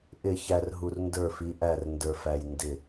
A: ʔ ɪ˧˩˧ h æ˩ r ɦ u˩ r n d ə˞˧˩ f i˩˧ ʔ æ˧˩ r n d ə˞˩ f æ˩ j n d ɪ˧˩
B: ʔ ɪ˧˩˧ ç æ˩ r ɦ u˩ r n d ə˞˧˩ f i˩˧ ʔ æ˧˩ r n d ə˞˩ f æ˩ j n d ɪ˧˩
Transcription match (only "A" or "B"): B